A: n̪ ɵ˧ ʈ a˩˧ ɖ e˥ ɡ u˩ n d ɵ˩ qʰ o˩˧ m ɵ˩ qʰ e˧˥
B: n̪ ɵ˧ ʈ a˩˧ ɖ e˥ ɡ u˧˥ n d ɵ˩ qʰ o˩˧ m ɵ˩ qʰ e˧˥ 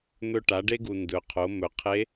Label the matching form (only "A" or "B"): A